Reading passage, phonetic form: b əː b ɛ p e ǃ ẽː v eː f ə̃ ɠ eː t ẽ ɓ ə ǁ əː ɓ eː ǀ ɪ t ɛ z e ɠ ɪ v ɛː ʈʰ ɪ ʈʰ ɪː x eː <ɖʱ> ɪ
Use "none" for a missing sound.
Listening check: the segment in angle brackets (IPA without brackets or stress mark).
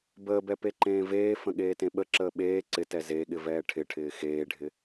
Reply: ɖʱ